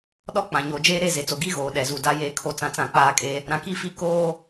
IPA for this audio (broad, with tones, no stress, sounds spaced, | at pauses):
ɗ ɔ˦ k͡p ã˨ ɲ o˨ d͡ʒ eː˦ ɾ e˦˨ z e˨ t͡s o˨ ɡ i˦ ɣ oː˨ ɗ ɛ˨ z u˨ d a˦ j eː˦ kʰ o˦ t͡s ã˦ t͡s ã˦˨ k͡p aː˦ kʼ e˦ | ɾ ã˨ k i˦˨ f i˦ k oː˦